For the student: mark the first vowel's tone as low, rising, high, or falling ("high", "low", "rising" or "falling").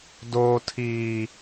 high